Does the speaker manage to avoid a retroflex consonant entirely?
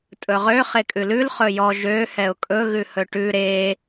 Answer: no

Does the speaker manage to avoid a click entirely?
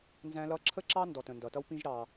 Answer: no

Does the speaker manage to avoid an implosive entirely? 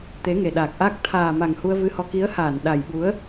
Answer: no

